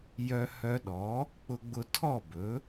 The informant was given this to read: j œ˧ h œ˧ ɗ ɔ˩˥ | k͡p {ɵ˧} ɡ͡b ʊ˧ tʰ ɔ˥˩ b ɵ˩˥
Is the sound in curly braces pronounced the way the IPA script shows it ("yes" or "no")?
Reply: no